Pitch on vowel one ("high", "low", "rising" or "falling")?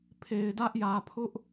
low